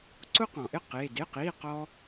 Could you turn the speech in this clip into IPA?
ǀʊ˥qɔ̃˨ʔɪ˥˧ qe˧˥˧ dɪ˧˥˧qi˧˥˧qɔ˥

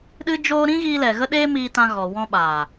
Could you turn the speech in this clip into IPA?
ɗɨ˦d͡ʒoː˦ ɾĩ˦ɣiː˧lɛ˨ ɣə˦ɗeː˦miː˧tã˧ ɣɔ˨wɔ̃˧ɓaː˨

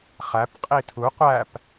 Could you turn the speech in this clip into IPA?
χæp qʼitʰu qʷæp

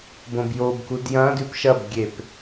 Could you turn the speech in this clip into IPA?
bõbjobkud jɐ̃ dʉpʃɐbɡʲep

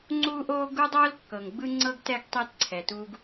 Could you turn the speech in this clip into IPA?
ŋ͡ǀuː˦ʔoː˦ ɡu˦dˤoː˦l kːɤ˨ŋɡ͡bɯ˦ ŋ͡ǀɤ˦ɡtɛ˦ɡ tˤɛ˦tǀʰɛ˨tu˦ɡ

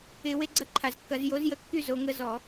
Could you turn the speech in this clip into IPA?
ɪ˧˩˧ we˦ɡ͡ǀɐ˦ǃʰa˨˩zkːɐ˧˩˧z jo˨˥zjə˨˥kːy˦zo˩˧ ŋə˦zɔ˧˩˧

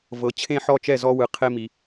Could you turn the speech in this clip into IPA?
vɤ˩˥ t͡ɕʰẽ˥˩ħɔ˥˩t͡ʃɛ˥˩ zɔ˧ wɯ˩ qʰe˧mi˩

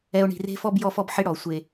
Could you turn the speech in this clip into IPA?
ɛ˨o̯ ɳi̤˨re̤˦fɔ˦b jɔ˦fɔ˦bħɪ˦ ɽɔ˨ sʷe˦

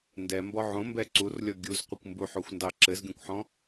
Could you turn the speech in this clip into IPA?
ndɛmbɔ ʕõmbɛ ǀurlʲɔ ɡʲuzqʷɘkʷ mbuħoxʷndɑ ǁɘzɡʲõkʷħɔ̃

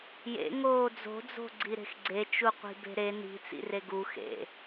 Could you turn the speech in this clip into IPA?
jḛŋoː d͡zo̤d͡zo̤ɡ͡ǀiɾe̤x ɡ͡ǀet͡ʃuqʷi̤be̤ ɾe ni̤t͡sḭre ɡu xḛ

